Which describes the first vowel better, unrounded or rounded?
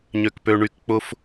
rounded